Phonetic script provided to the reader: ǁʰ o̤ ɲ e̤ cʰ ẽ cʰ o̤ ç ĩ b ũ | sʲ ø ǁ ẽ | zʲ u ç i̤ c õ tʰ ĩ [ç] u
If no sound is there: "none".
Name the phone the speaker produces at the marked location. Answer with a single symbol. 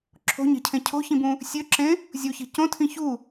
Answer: ç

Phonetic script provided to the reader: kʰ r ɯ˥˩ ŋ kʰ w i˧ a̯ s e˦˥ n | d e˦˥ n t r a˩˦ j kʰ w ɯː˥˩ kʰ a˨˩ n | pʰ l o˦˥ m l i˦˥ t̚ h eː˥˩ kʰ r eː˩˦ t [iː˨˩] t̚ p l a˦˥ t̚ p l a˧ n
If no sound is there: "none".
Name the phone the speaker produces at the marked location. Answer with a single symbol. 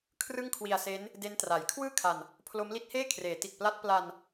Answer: i˨˩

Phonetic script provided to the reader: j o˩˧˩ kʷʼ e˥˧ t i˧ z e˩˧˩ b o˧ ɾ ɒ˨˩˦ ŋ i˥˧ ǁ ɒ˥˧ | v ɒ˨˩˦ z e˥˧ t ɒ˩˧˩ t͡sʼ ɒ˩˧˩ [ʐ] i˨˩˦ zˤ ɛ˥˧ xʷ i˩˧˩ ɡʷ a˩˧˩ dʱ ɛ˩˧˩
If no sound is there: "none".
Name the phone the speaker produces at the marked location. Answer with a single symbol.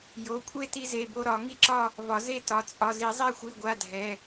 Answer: z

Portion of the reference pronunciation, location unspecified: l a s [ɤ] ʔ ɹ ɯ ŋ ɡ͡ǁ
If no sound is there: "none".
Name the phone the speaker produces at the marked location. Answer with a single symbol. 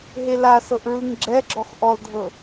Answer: ɤ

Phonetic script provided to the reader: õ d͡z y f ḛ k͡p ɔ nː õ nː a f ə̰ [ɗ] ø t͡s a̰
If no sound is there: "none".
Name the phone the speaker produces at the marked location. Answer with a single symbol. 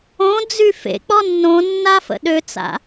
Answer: ɗ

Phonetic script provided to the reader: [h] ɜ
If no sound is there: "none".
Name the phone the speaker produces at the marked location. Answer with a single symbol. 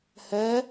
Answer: h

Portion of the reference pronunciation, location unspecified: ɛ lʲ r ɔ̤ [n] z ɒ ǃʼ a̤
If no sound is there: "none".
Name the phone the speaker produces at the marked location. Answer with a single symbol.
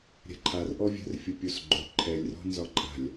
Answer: n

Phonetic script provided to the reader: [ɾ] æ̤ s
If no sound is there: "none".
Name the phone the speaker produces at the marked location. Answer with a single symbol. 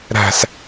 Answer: ɾ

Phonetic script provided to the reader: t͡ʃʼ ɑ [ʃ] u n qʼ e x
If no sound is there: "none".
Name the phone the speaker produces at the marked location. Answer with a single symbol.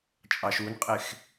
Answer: ʃ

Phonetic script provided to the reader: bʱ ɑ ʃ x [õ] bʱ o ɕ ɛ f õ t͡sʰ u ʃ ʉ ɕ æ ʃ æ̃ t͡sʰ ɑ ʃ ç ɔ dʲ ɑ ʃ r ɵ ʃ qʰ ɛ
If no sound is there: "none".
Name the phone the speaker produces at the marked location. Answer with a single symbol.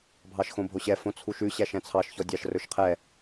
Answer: õ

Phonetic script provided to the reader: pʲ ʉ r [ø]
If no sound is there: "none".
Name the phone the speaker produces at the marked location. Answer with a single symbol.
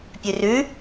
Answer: ʉ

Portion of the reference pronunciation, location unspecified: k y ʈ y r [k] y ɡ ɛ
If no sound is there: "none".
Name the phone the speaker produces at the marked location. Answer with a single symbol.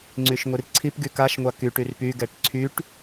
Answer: p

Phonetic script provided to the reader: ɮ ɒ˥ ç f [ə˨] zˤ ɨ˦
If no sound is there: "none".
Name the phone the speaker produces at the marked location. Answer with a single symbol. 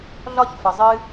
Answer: ə˨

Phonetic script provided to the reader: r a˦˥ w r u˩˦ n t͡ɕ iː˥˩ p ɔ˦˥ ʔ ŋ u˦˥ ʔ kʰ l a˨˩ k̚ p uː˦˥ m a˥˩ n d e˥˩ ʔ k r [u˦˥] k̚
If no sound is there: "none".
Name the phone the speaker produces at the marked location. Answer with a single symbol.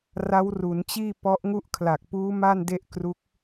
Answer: u˦˥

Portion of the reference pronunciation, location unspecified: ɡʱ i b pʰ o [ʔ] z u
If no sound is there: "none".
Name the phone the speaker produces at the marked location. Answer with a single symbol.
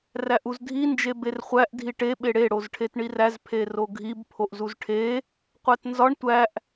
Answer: ʔ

